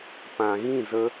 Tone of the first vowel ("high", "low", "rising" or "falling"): low